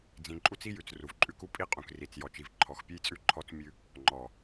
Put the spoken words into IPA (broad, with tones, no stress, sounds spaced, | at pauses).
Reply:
d͡z ĩ˨ ǃʼ u˦ t͡s i˦ j ʉ˨ t͡s r u˨ v ǃʼ ʉ˦ k u˦ pʼ i˦ qʼ ũ˨ k r i˨ t͡s j ɔ˨ t͡ʃ i˨ v ǃʰ ɔ˨ x pʲ ʉ˦ j t͡sʼ ʉ˦ ǃʰ ɔ˦ t͡s mʲ ʉ˦ | ŋ͡ǃ ɔ˨